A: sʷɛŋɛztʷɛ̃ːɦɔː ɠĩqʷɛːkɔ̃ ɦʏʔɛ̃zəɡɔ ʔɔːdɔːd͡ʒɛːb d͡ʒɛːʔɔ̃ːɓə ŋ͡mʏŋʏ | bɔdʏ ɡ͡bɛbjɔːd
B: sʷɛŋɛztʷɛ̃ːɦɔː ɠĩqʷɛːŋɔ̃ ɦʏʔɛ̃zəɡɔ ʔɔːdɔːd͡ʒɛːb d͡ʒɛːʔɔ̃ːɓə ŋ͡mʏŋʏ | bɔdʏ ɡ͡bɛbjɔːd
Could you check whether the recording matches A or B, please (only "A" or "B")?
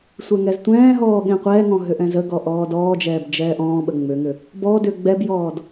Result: B